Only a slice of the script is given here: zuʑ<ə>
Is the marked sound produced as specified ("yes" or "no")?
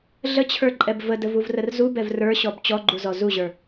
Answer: no